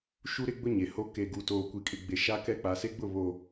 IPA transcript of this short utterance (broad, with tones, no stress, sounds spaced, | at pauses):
ʃ u˦ ɾ ɪ˦ ɡ͡b ʊ˦ ɲ e˨ h o˦ k e˨ ɡ u˨ t oː˨ kʷ i˨ kʼ ɪ˨ ɡ͡b e˨ ʃ a˦ k ɛ˦ k͡p a˨ s e˦ ɡ͡b ʊ˦˨ β o˨